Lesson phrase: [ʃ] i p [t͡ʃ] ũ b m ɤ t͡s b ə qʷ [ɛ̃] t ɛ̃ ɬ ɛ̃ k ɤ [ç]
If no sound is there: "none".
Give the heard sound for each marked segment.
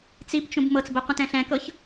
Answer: t͡s, t͡ʃ, ə̃, ç

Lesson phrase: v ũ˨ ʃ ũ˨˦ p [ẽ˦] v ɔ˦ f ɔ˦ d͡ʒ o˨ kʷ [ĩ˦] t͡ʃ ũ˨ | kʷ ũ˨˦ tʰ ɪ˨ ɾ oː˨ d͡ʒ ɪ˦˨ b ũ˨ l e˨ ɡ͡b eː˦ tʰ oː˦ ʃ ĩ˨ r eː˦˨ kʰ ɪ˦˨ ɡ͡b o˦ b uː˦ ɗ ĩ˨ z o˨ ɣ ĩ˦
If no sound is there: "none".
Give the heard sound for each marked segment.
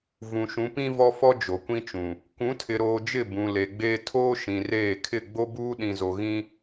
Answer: ĩ˦, ĩ˦

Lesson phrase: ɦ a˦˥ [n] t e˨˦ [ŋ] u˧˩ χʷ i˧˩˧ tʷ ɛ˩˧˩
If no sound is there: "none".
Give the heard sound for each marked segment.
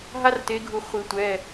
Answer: r, ɡʱ

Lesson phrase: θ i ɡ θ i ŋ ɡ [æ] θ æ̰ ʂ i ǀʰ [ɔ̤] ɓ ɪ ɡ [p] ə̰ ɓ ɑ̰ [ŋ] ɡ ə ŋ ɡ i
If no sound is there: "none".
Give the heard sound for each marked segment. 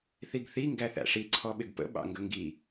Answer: æ, ɔ, p, ŋ

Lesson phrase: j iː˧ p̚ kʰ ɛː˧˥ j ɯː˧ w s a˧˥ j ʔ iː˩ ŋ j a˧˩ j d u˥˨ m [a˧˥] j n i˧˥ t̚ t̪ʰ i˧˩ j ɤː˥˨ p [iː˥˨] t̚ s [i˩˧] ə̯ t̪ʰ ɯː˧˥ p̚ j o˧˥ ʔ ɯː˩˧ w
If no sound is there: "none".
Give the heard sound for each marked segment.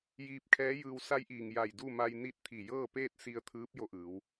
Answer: a˧, eː˥˨, i˧

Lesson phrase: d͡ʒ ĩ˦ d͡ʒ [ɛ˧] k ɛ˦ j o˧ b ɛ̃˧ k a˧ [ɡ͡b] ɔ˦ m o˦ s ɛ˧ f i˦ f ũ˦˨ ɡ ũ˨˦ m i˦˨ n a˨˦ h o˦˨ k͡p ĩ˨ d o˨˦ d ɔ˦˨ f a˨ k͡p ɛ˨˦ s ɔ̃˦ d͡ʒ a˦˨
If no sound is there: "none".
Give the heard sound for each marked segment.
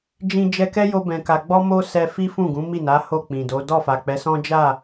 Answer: ɛ˧, ɡ͡b

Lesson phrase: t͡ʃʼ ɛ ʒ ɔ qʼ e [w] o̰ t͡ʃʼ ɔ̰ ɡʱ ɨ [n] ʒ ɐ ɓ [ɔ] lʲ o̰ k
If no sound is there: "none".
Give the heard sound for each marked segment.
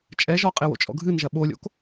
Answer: w, n, o

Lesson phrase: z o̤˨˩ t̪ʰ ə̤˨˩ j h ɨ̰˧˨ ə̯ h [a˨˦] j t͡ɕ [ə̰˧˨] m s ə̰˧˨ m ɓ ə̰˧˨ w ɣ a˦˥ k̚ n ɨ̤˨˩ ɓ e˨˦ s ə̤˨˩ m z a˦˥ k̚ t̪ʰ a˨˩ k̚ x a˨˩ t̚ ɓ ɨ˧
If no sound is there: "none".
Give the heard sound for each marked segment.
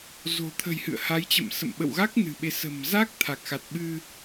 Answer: a˨˦, ə̰˧˨

